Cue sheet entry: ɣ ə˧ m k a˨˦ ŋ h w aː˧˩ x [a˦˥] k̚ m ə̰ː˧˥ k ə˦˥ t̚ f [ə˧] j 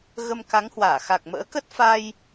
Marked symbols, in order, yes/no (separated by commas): no, no